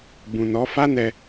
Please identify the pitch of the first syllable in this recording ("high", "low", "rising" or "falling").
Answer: low